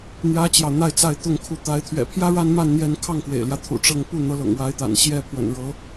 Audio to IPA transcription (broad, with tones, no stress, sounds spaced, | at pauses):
n̪ j ä˥ t͡ɕ j ɑ˨ ʊ̯ n̪ a˥˧ ɪ̯ t͡s a˥˧ ɪ̯ t̪ ʊ˥˩ ŋ kʰ u˧˥ t̪ a˧˥ ɪ̯ t̪ʰ ɥ ɛ̰˨˩ pʰ j ä˥ ɻ a˥ n m a˥˧ n n̪ j ɛ˥˧ n kʰ ɑ˥˩ ŋ k w ḛ˨˩ ɪ̯ l j ä˦ t̪ʰ ṵ˨˩ ʈ͡ʂ ɤ˥˧ ŋ p u˥˩ n̪ ɤ˧˥ l ɤ̰˨˩ ŋ w a˧˥ ɪ̯ t̪ a̰˨˩ n ɕ j ɛ˥ pʰ w ə̰˨˩ n ɻ ɤ˧˥